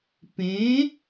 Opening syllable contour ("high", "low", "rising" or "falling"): rising